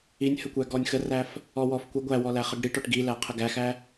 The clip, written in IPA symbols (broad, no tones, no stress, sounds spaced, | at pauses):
i nʲ h ə kʷ æ ɡ ɔ nʲ x ə r æ f | ɔ w ɔ f kʷ ə ɡʷ æ w ɔ l æ χ ə ɡ ɽ i ʈ ɔ ʈ ɡ i l æ qʰ ə ɡ æ x æ